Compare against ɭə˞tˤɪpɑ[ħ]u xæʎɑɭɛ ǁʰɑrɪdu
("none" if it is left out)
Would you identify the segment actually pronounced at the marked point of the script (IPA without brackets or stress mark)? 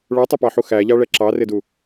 ħ